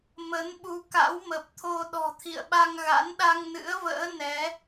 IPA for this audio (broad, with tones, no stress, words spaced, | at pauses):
mə˨˦nɓu˨˦ ka̰˧˥wmə˨˩p̚t̪ʰo˧ ɗɔ̤˨˩t̪ʰḭ˧˨ə̯ɓa˧ŋɣa̰˧˥n ɗa˧ŋnɨ̰˧˥ə̯və̰ː˧˥ nɛ˨˦